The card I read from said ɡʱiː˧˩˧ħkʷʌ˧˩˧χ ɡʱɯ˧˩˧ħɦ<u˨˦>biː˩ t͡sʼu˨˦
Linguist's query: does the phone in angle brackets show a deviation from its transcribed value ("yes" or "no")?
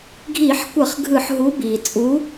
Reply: no